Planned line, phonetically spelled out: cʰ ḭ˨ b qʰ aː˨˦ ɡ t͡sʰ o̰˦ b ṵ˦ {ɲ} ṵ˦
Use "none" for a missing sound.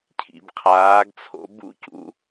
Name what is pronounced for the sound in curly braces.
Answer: c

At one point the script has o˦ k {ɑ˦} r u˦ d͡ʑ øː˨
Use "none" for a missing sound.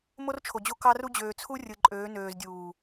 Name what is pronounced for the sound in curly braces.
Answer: ɑ˦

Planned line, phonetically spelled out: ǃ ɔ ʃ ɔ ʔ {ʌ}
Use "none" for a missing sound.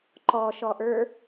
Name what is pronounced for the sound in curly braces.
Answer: ə˞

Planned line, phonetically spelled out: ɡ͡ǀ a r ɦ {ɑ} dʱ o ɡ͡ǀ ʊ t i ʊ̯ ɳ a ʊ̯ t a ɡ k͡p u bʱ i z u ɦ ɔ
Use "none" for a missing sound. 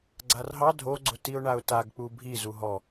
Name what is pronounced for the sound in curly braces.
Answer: ɑ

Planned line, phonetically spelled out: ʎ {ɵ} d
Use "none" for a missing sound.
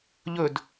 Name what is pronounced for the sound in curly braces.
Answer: ɵ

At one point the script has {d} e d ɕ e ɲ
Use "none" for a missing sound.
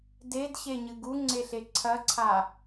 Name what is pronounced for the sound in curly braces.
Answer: d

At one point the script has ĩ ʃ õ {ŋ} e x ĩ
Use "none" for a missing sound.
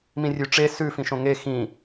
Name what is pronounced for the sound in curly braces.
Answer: ŋ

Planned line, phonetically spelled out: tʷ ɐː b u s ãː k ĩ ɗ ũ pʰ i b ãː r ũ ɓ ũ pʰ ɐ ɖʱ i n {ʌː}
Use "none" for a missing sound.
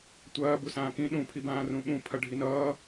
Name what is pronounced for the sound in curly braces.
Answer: ʌː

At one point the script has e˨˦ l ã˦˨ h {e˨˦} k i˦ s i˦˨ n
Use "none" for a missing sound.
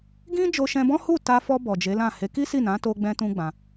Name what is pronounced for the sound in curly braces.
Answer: e˨˦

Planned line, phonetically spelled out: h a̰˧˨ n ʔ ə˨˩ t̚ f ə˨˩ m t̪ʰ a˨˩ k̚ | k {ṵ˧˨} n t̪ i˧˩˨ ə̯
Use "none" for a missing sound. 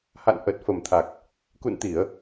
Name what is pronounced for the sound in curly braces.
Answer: ṵ˧˨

